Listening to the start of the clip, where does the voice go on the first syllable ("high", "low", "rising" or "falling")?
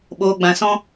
low